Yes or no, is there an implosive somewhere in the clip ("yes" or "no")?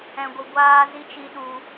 yes